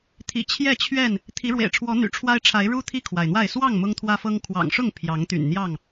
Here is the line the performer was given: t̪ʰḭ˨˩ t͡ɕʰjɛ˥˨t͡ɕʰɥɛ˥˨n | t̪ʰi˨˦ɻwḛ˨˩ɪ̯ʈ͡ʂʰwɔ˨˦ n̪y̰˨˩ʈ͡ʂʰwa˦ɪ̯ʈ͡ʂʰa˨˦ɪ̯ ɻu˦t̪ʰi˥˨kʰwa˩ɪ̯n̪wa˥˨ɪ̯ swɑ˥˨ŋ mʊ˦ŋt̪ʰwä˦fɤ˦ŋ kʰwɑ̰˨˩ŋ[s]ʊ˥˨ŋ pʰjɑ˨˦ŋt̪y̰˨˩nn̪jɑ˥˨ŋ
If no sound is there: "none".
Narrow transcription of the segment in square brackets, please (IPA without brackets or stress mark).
ʂ